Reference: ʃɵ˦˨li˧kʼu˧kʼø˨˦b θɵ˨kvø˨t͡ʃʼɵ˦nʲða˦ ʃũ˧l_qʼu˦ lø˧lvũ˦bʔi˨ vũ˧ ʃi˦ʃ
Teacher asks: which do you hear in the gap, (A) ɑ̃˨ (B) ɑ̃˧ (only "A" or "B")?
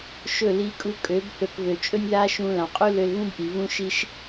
A